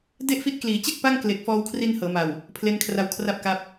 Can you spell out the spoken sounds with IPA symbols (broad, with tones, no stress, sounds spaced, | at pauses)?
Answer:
d e˥˩ ʔ f i˦˥ t̚ k l iː˩˦ t͡ɕ e˥˩ k̚ p a˥˩ ŋ k l e˨˩ k̚ f ɔː˧ w kʰ r i˧ n h ɤː˩˦ m a˨˩ w | pʰ l e˧ n kʰ r a˧ w kʰ r a˥˩ p̚ k a˦˥ p̚